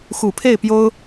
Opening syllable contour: low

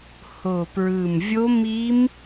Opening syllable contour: low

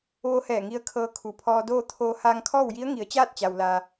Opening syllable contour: rising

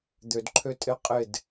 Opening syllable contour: low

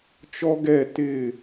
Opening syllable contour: high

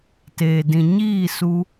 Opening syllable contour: low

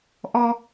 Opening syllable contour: high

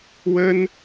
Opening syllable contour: high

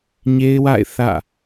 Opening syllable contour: high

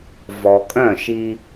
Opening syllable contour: low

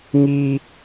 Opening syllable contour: high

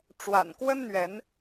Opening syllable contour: low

